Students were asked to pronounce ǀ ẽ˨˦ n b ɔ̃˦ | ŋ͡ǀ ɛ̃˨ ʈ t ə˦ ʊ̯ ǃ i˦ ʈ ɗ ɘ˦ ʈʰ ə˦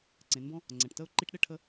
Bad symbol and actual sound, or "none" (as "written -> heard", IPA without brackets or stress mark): none